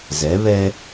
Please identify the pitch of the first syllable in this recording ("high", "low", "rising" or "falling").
rising